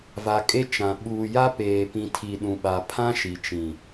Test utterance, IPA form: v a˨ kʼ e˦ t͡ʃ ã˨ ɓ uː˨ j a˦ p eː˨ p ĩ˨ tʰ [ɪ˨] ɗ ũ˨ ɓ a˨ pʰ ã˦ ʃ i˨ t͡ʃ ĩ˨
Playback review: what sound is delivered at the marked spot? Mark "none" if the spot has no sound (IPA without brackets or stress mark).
i˨